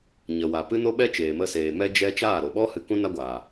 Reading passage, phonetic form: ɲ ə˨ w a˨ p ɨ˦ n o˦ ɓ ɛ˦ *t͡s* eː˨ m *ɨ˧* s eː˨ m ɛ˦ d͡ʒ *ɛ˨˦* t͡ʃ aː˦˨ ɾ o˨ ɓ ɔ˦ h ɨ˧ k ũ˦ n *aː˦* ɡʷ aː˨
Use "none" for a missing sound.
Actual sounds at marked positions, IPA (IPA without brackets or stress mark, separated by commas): t͡ʃ, ə˧, ɛ˦, a˦